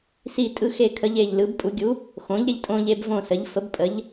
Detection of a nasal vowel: present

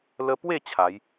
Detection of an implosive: absent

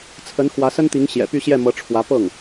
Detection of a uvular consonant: absent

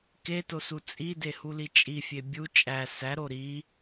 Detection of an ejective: present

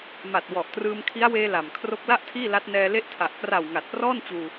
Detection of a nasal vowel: absent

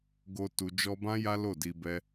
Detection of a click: absent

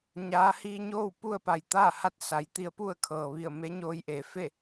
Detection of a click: absent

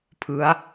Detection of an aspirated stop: present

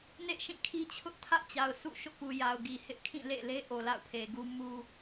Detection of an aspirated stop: present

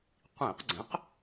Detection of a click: present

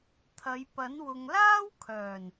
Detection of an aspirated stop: present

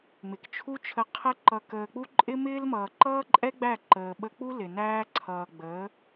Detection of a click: present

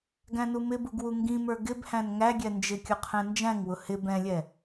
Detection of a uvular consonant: present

